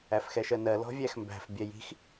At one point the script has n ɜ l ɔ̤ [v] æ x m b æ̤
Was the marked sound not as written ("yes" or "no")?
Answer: yes